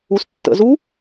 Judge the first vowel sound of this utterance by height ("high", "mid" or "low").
high